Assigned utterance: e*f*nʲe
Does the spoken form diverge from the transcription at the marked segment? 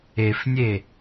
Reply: no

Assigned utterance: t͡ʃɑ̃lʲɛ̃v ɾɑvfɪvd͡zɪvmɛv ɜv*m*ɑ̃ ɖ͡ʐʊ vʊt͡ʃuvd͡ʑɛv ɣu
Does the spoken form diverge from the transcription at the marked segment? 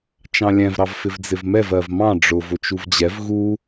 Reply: no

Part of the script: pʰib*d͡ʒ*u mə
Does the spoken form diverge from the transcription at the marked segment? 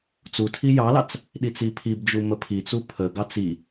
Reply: no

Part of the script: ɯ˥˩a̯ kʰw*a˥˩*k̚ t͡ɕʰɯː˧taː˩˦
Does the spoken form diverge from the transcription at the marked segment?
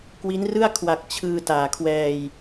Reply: yes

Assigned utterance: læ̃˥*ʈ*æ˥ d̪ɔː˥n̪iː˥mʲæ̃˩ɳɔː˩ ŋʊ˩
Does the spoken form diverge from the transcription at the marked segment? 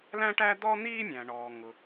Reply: no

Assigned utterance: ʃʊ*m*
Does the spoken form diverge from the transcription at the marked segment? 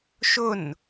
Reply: yes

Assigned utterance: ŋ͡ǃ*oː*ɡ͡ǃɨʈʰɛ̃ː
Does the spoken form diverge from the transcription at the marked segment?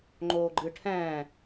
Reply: no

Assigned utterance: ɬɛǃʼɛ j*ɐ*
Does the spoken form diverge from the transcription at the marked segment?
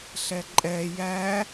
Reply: yes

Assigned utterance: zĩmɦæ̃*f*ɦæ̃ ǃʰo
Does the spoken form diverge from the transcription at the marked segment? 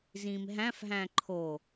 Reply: no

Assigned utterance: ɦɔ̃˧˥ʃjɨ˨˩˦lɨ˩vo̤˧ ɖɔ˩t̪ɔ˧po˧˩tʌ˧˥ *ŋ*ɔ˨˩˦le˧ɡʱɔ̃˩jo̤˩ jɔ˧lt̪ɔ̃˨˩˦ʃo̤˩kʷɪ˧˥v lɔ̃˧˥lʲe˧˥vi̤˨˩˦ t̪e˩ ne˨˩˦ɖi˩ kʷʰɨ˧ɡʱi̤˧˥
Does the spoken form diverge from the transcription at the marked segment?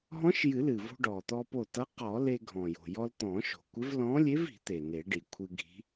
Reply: yes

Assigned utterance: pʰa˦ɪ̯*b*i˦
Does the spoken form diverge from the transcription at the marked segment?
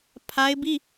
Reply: no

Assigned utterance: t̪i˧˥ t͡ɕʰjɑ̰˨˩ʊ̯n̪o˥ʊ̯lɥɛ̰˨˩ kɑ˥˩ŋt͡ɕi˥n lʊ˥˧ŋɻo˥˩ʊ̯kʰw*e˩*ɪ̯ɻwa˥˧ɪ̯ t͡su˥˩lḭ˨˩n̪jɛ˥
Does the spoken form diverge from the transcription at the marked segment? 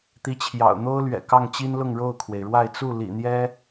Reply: no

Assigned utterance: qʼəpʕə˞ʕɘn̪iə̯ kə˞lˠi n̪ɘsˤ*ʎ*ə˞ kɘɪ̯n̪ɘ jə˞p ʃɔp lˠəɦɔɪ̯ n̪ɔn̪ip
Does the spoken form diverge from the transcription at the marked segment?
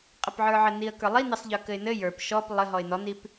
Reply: no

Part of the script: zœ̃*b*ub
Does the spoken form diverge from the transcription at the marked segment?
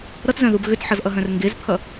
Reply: yes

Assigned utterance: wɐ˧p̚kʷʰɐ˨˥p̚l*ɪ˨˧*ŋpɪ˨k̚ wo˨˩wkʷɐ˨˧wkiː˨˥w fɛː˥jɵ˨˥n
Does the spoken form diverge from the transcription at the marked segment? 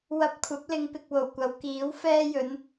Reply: no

